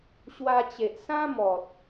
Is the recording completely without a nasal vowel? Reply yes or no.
no